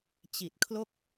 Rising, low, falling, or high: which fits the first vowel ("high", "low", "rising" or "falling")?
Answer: low